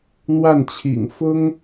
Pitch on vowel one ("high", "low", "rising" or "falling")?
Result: falling